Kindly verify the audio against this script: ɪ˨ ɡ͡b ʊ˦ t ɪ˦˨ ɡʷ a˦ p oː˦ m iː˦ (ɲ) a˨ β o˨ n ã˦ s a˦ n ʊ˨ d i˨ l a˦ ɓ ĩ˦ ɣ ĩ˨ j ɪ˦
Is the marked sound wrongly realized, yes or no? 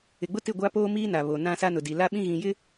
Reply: yes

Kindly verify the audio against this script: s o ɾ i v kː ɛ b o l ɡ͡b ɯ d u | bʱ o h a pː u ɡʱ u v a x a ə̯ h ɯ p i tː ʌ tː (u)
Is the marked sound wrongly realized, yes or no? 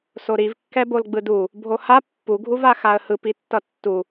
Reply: no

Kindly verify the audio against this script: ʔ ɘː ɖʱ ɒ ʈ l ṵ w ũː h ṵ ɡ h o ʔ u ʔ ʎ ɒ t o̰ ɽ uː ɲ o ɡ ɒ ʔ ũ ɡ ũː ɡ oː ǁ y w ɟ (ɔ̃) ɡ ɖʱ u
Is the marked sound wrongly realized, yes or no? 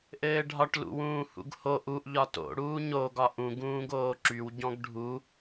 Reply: no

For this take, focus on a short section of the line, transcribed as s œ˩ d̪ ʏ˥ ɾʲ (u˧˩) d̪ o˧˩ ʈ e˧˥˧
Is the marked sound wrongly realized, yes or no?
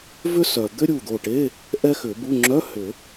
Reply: no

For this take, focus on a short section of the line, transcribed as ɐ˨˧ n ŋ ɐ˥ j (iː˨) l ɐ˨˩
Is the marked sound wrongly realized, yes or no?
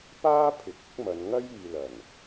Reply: no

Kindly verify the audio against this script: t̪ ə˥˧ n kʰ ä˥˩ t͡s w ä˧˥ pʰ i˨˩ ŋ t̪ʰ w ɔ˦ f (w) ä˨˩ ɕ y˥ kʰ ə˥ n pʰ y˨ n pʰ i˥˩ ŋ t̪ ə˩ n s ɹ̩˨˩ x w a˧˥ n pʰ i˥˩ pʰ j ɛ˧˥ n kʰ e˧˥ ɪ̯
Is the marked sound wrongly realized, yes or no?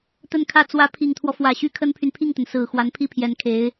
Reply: no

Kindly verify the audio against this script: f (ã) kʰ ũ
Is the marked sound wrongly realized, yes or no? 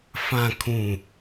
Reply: no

